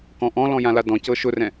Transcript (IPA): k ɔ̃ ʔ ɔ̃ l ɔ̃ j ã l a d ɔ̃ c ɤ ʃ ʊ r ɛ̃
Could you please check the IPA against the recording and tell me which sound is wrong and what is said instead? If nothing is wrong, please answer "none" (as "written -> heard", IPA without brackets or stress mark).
none